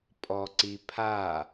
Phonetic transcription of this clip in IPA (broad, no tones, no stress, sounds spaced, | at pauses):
pʼ ɔ ǀ i pʰ a